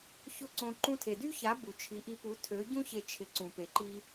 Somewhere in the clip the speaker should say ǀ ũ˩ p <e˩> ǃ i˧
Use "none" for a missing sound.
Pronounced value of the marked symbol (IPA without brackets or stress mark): e˩